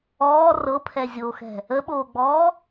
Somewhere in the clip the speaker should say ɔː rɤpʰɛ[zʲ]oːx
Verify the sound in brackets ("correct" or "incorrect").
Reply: correct